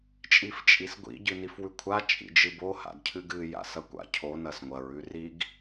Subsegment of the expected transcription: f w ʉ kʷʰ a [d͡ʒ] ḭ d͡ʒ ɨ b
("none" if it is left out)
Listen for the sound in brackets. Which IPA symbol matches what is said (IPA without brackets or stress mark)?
t͡ʃʼ